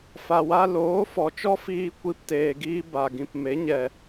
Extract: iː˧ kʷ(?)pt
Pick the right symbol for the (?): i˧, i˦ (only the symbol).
i˦